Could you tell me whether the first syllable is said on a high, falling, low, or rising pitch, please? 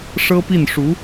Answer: high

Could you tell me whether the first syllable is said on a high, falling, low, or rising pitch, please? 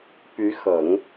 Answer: rising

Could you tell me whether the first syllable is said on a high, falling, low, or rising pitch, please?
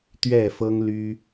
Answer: falling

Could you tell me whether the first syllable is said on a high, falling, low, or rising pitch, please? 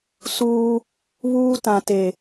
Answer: high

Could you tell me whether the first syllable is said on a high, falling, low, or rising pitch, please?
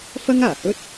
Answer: high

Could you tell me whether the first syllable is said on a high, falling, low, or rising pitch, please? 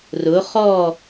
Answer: rising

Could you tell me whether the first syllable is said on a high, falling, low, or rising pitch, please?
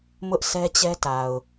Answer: high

